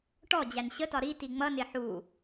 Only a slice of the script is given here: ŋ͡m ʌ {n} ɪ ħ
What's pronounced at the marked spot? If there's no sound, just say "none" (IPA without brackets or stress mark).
n